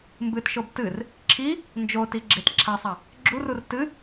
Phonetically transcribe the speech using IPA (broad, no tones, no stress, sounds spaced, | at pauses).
m b ɨ t ʃ o b t ɨ r | ǁʰ i | n d͡ʒ o t i ɡ͡ǁ e t ǁʰ a sˤ a | ɡ͡ǁ u r u r t ɨ